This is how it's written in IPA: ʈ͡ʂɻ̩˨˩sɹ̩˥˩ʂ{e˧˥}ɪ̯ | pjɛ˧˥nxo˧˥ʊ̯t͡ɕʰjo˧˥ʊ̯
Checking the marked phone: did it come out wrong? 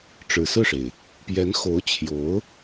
yes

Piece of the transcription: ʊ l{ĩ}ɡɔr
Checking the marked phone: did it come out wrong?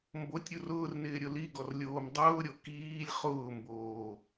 yes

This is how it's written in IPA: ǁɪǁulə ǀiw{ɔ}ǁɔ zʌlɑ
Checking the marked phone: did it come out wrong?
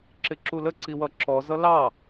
yes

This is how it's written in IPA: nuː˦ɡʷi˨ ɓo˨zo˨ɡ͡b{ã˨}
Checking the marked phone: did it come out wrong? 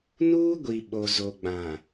no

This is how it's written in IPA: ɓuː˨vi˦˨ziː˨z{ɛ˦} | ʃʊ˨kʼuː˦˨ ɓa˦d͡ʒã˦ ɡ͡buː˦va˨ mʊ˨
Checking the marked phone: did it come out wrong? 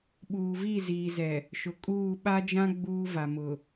yes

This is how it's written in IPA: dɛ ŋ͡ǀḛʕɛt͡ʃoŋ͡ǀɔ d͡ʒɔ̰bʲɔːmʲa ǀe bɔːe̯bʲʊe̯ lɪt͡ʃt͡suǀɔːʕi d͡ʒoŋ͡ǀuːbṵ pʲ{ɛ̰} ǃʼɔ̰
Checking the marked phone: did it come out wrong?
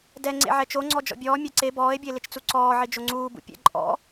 no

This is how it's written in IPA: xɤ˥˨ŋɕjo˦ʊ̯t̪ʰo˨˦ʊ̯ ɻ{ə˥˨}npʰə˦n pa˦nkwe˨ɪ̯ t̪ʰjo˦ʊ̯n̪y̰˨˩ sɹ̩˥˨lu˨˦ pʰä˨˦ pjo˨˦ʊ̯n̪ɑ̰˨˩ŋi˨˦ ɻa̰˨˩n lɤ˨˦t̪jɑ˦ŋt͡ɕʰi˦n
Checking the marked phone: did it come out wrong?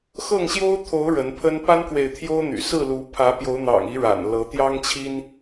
yes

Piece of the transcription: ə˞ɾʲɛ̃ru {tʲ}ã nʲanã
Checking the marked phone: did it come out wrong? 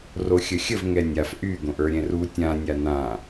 no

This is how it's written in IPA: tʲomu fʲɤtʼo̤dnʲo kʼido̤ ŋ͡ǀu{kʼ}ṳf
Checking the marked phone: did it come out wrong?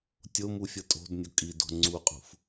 yes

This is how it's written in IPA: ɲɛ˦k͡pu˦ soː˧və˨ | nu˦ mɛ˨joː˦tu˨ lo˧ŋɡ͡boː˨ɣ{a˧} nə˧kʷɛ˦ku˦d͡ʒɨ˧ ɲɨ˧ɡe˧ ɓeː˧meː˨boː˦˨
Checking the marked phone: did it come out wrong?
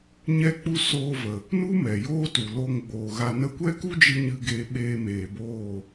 no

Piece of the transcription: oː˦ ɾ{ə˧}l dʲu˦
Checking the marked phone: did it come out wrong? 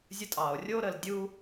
no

